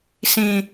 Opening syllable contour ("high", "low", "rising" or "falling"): low